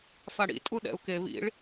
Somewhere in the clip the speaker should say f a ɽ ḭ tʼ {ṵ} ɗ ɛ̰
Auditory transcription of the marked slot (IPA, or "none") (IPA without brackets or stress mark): u